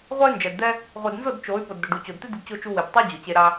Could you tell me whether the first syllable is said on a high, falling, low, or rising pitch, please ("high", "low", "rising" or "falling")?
high